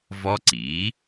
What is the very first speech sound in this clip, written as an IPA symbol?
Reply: v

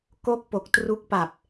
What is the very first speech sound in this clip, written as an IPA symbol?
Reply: k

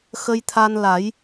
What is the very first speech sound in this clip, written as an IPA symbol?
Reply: x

